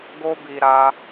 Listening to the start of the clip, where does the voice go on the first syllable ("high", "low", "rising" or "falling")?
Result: high